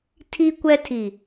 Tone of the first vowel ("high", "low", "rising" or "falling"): high